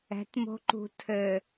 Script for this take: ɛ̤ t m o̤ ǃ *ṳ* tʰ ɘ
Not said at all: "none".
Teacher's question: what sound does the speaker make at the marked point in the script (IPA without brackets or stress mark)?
ṳ